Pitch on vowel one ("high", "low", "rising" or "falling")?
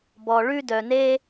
low